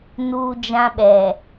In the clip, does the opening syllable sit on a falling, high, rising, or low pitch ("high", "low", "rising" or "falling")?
high